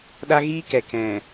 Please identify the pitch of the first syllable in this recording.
high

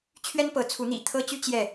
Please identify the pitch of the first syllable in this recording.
high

